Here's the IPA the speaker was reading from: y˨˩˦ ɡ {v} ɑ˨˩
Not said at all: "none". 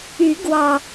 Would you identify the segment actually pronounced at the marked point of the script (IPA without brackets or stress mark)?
w